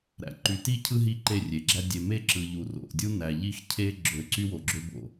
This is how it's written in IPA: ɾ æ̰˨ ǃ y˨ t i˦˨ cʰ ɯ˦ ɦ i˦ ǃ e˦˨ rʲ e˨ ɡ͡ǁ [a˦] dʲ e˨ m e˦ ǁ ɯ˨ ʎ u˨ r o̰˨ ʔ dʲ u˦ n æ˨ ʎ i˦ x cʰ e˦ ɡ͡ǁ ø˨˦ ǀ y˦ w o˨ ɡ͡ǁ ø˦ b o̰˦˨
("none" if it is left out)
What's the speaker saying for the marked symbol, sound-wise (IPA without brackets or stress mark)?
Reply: æ˦